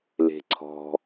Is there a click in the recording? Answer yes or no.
yes